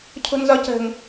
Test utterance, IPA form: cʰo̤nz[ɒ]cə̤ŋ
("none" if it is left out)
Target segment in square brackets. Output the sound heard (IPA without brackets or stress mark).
ɒ